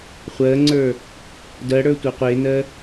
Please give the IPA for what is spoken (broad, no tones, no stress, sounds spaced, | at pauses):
χʷ ɜ ŋ͡ǀ ə˞ | d ɜ ɽ ə˞ tʷ ɜ qʷ e n ɜ